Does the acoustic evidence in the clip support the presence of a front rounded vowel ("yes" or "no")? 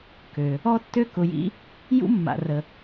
yes